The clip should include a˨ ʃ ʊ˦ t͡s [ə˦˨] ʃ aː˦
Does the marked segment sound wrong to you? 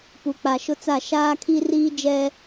yes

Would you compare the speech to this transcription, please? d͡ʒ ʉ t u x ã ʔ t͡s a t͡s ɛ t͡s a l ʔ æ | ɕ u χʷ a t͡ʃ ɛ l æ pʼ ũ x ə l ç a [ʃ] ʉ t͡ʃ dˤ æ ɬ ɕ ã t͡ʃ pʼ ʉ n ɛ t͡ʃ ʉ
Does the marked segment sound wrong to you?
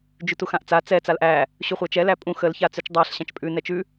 yes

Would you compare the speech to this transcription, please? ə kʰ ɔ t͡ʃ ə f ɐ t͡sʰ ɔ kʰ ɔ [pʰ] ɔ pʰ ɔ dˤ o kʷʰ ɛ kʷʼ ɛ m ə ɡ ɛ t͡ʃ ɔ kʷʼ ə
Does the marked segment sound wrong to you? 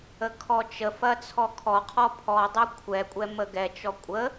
yes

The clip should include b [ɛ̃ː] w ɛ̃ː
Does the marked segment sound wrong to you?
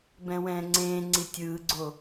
yes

